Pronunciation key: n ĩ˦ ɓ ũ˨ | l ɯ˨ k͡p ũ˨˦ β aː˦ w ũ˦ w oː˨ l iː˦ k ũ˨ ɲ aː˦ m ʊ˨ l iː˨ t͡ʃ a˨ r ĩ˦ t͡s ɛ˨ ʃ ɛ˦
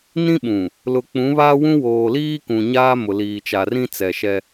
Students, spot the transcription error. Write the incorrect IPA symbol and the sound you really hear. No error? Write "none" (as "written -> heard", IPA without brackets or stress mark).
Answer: ɯ˨ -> ʊ˨